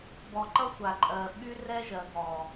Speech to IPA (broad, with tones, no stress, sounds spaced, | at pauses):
b ɔ˨ ǃ ʌ˦ sʷ a˨ ǃʼ ɜ˨ ɓ y˦ r ɛ˦ ʒ ɜ˨ ɡ ɔ˨